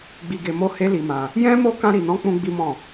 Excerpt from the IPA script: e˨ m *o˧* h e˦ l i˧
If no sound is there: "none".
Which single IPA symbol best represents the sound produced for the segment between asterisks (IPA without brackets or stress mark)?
o˧